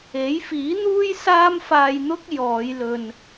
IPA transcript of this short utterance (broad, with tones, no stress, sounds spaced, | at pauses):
e˨˥ j f iː˨˥ n̪ uː˥ j s aː˥ m f aː˧ j n̪ ʊ˥ k̚ j ɔː˨˧ j l ɵ˨ n